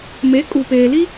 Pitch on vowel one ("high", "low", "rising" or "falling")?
rising